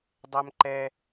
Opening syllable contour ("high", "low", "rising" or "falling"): high